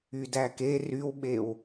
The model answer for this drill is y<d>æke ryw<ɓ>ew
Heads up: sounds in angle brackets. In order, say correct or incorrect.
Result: correct, correct

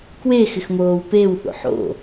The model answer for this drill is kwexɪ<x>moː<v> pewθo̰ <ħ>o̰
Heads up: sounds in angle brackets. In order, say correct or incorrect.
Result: correct, incorrect, correct

